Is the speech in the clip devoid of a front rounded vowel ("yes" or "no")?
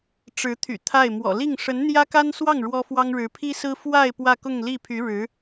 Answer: no